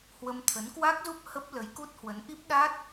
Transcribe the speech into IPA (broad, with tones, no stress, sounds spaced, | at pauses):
h w ə˧ m t̪ʰ ə˨˦ n k w a˦˥ k̚ z u˦˥ p̚ h ə˦˥ p̚ l ə˨˦ j k u˦˥ t̚ h w ə˨˦ n ʔ i˦˥ p̚ ɗ a˦˥ t̚